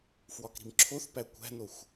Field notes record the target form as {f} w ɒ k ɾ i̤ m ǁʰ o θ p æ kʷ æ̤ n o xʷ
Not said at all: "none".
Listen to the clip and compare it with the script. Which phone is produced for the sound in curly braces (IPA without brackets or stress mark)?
f